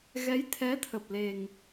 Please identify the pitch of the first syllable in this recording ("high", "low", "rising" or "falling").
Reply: rising